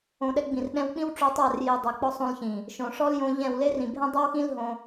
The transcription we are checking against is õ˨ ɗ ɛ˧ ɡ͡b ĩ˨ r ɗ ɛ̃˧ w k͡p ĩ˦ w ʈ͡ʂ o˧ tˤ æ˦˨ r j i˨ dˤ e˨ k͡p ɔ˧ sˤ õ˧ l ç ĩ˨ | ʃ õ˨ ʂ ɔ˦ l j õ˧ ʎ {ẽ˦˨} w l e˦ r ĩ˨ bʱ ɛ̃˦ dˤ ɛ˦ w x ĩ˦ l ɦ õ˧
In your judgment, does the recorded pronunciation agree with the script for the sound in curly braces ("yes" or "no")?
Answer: no